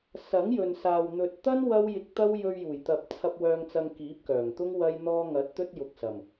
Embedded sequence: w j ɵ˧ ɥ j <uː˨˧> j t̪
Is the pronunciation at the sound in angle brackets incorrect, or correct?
incorrect